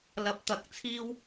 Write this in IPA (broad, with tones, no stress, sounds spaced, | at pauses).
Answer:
l ɐ˨ p̚ t̪ ɐ˨˥ k̚ t͡sʰ iː˥ w